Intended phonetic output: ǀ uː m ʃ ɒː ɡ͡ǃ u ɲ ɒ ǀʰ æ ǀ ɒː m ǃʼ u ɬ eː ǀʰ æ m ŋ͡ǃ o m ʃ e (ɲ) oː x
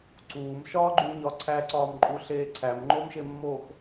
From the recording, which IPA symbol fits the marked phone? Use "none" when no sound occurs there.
mː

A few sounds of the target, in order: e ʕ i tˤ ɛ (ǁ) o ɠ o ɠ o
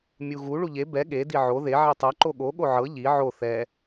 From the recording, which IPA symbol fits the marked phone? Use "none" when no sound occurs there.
ǃ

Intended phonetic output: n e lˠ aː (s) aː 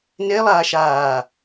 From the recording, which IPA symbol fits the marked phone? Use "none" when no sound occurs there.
ʃ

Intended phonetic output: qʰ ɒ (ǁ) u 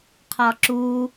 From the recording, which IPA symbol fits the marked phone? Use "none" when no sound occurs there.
ǁ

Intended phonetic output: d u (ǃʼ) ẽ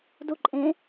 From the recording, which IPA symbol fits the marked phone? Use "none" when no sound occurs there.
ǃʼ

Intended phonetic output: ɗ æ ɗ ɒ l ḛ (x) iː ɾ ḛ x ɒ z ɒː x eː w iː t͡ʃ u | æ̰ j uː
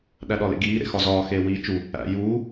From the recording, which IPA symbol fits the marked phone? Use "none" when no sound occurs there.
ɡ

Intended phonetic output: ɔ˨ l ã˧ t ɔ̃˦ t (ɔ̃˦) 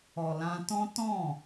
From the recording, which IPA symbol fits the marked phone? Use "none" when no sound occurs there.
ɔ̃˦˨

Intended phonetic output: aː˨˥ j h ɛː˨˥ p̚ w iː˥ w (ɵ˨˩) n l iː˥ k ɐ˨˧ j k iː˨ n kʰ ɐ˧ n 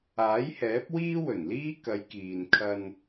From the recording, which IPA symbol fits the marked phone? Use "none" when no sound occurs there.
ɵ˨˩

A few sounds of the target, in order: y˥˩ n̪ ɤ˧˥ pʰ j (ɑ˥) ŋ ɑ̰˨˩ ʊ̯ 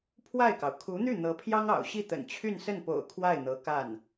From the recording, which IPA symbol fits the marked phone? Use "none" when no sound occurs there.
ɑ˥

